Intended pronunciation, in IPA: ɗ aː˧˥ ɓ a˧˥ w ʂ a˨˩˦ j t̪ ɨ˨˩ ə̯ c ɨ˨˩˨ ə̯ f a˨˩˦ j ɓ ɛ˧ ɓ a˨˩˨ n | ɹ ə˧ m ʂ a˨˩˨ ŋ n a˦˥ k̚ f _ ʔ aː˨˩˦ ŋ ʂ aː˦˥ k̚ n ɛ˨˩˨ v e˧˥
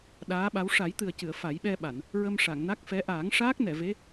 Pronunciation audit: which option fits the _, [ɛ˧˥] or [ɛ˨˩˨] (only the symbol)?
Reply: ɛ˧˥